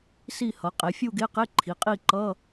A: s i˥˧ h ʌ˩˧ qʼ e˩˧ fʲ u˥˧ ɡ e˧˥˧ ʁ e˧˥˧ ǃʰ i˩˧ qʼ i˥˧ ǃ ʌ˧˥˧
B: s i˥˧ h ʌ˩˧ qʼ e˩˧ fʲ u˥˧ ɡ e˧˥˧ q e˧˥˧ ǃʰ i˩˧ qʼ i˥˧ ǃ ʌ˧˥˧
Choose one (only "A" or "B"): B